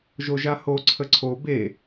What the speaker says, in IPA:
ʒ o ʒ a h o ǀʰ ə ǀʰ o b e

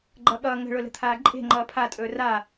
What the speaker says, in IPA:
ɡ͡ǃ ʌ ɠ ʌː ŋ ə̤ ɭ ʊ l ə̤ t̪ʰ aː ǃʼ e̤ ŋ͡ǃ ʌː pʰ a tʼ ɵː r a

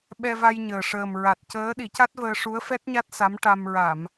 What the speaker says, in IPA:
ɓ ɛ˧ v a˧ j ɲ əː˨˩ ʂ əː˨˩ m ɹ a˨˩ t̚ c əː˧˥ ɗ i˨˩˦ c a˦˥ t̚ v əː˧ ʂ u˧˥ ə̯ f ɛ˦˥ t̚ ɲ a˦˥ t̚ s a˧˥ m ʈ a˧ m ɹ a˨˩˨ m

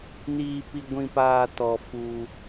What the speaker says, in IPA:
n iː˨ p i˨ ɡʷ ĩ˦˨ p aː˦˨ t ɔ˨ f uː˨

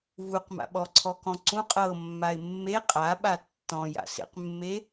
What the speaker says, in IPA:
v u q m a̰ ɓ ɔ ǀʰ ɔ k ɔ̃ ǀ ũ qʼ ɤ mː a ɪ̯ mː e qʼ a ɓ a tː ɔ̃ j a̰ s ḛ q mː e

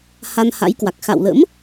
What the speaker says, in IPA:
h a˧ n h a̰˧˥ j k w a˨˩ k̚ x a̰˧˨ w l ə̰˧˥ m

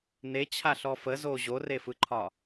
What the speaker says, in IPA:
n e t͡ɕʰ a ɬ ɔ f ə z o ʑ o r e f ɯ ǃʰ ɒ

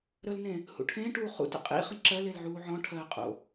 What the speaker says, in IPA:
ɾ ə l n ẽ | h ṵ ʈʰ ẽː ʈ uː χ ṵ t ə̰ qʼ ḭ χ ə̃ ǁ ɜ l e l ʕ uː ʕ ɔ̃ ʈʰ ɜː qʼ o̰

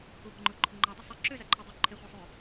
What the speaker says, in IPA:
u b ɔ ŋ͡ǃ ʊ ǃʰ ʊ ŋ͡ǃ ɔ dˤ ə sˤ i ǁ ø z a ǃʰ o dˤ y ǃʰ ɪ χʷ e sˤ ø

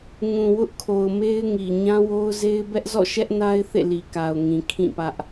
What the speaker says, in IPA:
ŋ ũ˨ w ʊ˦ ʔ kʰ o˨ ʊ̯ m e˦ ɪ̯ ŋ i˨ ɲ ã˦ w o˦ ʊ̯ z e˦ ɪ̯ b ɛ˦ ʔ z ɔ̰˦˨ ʃ ɛ˦ ʔ n a˦ ɪ̯ θ ḛ˦˨ l i˨ k a˨ ʊ̯ ŋ ĩ˨ kʰ ĩ˦˨ p ä˦ ʔ

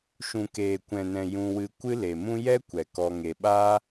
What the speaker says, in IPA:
ʃ ũ˨ k eː˨ kʷ ɛ̃˨ n ɛ̃˨ j ũ˧ w ɨ˧ kʷ ɨ˦ l e˨ m ũ˦ j ɛ˦ kʷ ɛ˨ k ɔ˦ ŋ e˧ ɓ aː˦

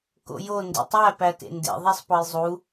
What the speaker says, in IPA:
k o̰ j o n d ḭ tˤ æ p æ t ḛ n d ḛ ðˤ e sˤ p ɒ j zˤ u

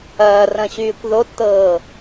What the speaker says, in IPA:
ɐː r ɐ̃ ɕ yː kʷ ð o tː ɤː

